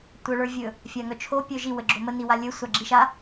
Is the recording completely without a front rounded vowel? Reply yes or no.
no